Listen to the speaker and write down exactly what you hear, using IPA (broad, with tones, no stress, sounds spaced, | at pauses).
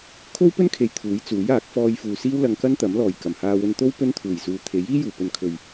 kʰ o˥ w p ɵ˥ n kʰ e˨ j t̪ʰ uː˨˥ j t͡s uː˨˥ j aː˨˥ k̚ f ɔː˧ j f uː˨ s iː˥ w l ɐ˧ ŋ k ɐ˥ n t̪ ɐ˨˥ m l ɔː˨˩ j k ɐ˨˩ m h aː˧ w ɵ˧ n t̪ o˥ w p ɵ˥ n t̪ʰ uː˨˩ j s uː˨ t̪ʰ e˨˥ j iː˥ j uː˨˩ p ɵ˨ n kʰ ɵ˨ ɥ